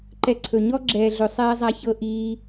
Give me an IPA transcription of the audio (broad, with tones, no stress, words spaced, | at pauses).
ǃɛ˧ǀʰɵ˨ ɲɔ˦ɡ͡ǁɛː˨ɮɵ˨ sˤɛː˧zˤa˧çɤ˧ ʔiː˧